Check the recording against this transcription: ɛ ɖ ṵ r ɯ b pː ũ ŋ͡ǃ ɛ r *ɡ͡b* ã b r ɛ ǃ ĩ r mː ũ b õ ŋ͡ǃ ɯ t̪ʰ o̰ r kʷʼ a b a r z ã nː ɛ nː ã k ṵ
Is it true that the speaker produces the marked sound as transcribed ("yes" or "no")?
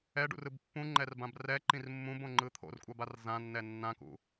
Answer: no